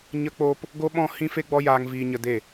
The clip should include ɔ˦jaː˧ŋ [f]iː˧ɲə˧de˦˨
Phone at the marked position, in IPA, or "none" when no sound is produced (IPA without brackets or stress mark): v